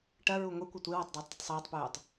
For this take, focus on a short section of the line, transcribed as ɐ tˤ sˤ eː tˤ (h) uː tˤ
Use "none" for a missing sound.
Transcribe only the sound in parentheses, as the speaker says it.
p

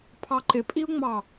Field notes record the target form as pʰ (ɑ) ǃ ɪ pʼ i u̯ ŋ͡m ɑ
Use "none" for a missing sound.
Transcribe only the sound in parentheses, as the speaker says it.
ɑ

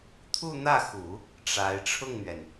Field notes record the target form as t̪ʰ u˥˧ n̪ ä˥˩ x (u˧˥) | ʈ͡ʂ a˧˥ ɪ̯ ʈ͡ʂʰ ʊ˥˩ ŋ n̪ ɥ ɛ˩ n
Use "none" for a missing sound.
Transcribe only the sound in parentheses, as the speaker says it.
u˨˩˦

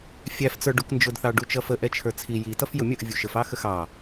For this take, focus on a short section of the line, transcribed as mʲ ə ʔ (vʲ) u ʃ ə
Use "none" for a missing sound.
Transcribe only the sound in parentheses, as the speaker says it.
vʲ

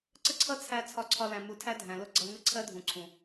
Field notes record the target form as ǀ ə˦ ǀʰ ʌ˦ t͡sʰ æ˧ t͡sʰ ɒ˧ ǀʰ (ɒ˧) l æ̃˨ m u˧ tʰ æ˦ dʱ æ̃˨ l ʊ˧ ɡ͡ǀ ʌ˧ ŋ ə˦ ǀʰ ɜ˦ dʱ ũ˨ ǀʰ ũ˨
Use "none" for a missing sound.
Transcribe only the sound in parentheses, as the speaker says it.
ɒ˧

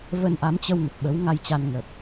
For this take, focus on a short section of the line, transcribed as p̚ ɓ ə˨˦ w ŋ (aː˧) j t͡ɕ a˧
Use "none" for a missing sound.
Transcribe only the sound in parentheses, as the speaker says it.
a˧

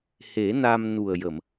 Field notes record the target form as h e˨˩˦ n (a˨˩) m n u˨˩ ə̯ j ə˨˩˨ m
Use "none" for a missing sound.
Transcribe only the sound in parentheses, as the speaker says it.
a˧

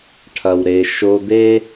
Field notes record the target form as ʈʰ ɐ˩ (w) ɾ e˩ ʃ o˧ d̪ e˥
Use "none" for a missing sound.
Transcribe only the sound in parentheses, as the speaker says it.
w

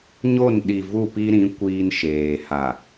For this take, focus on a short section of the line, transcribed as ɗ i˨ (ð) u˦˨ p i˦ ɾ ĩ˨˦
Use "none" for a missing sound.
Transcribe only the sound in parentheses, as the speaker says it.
v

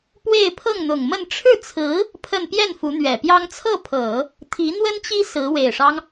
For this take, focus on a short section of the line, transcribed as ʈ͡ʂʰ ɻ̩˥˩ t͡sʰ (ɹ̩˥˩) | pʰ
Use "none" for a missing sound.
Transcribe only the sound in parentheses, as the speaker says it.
ɹ̩˧˥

